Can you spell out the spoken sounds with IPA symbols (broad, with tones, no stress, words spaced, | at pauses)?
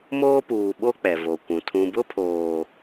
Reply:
moː˦puː˨ɓo˦ k͡pɛ˨vo˨kʷũ˨ tʰũ˨bʊ˦pʰoː˨